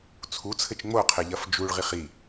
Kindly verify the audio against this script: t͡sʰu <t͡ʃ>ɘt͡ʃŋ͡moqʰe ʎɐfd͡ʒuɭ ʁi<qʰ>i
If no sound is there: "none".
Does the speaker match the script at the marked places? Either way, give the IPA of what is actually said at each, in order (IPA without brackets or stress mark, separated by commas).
t͡sʰ, χ